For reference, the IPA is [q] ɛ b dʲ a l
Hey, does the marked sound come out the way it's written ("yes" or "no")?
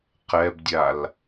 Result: yes